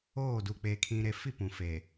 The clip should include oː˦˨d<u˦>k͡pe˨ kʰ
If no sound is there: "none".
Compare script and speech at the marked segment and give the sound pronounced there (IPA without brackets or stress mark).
u˨